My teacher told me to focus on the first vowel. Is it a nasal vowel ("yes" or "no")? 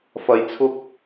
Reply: no